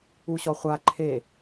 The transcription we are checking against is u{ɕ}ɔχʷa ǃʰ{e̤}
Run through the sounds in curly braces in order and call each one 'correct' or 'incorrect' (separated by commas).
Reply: correct, incorrect